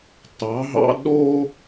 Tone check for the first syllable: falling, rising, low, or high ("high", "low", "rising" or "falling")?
rising